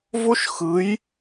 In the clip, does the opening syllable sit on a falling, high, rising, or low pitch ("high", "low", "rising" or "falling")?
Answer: high